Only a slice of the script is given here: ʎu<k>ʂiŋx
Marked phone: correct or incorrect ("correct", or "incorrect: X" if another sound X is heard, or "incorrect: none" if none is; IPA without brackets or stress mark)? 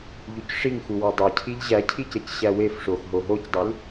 incorrect: c